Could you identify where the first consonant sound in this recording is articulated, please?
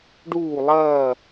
retroflex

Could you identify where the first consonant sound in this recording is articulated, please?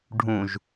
retroflex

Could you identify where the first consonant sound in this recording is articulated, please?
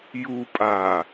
palatal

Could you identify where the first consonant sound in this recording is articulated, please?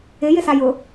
palatal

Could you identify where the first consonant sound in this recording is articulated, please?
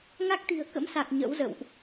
velar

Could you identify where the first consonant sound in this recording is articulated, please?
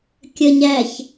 velar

